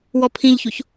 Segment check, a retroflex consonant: absent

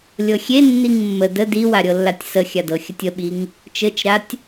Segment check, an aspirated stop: absent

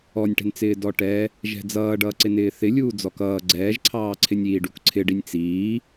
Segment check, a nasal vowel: absent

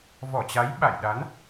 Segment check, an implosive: present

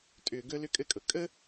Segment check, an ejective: present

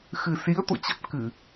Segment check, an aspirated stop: absent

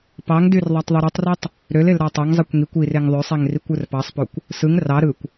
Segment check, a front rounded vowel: present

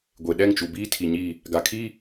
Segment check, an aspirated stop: present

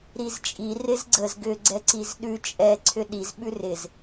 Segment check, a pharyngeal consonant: absent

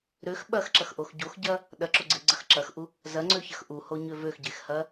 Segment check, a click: present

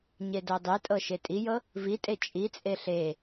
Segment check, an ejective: present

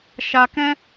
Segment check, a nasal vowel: present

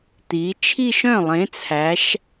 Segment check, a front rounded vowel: present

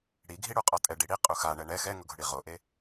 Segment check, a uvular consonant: present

